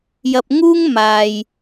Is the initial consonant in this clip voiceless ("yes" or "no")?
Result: no